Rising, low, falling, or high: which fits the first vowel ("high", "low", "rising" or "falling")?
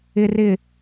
low